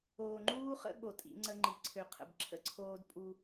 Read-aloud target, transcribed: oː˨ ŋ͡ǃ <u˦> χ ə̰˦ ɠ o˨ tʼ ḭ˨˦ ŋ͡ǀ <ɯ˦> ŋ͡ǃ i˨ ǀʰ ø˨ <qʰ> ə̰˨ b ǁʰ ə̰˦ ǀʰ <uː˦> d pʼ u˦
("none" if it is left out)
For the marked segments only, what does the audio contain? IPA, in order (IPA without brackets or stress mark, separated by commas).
uː˦, ə˦, qʰ, oː˦